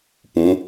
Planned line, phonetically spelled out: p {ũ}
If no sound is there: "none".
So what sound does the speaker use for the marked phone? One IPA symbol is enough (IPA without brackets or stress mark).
ũ